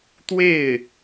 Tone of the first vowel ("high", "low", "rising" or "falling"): falling